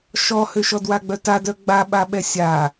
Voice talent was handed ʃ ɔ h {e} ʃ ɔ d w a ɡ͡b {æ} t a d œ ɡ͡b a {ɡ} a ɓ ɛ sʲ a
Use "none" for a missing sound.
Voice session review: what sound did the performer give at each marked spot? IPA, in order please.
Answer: ø, œ, ɓ

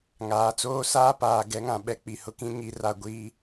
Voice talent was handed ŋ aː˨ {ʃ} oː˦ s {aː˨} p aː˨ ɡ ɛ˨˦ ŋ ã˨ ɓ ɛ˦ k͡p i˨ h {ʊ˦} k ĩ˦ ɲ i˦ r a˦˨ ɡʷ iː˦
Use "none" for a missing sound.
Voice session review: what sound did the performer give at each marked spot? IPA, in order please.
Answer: t͡s, aː˦, ʊ˦

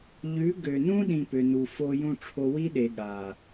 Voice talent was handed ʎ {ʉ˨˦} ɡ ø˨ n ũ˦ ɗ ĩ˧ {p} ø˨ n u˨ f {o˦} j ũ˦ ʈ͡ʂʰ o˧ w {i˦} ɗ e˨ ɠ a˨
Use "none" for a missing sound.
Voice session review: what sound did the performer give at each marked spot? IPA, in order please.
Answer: ʉ˨˦, p, o˦, i˦

